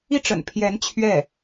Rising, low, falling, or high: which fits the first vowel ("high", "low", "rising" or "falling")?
falling